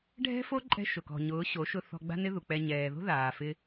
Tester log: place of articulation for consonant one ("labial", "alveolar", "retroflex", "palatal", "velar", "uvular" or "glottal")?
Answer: retroflex